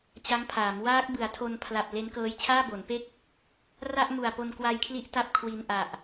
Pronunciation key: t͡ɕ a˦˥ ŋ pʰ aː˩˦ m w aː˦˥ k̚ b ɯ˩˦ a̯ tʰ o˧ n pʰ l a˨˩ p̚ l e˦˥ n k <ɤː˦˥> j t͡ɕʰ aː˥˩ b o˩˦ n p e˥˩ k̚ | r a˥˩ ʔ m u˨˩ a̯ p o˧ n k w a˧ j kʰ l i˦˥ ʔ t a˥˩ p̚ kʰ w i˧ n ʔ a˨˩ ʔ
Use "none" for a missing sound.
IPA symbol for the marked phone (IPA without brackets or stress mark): ɤː˦˥